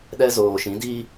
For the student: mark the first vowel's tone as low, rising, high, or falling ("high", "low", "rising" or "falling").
high